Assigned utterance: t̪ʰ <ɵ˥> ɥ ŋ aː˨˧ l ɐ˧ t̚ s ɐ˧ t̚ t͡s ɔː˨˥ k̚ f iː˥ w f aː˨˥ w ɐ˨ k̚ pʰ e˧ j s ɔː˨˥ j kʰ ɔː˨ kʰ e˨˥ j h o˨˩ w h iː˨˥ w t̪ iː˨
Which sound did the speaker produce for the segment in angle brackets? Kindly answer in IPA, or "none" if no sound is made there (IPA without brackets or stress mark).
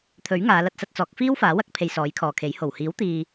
ɵ˨˥